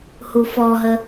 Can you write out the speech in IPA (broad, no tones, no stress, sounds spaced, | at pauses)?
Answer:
h u f ɔ ɦ ə